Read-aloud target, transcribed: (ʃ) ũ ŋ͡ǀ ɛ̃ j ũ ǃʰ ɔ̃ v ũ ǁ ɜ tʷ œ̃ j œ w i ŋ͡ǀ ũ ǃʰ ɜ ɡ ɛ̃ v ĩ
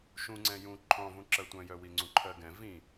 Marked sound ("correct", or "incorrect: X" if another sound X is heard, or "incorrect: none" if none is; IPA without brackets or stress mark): correct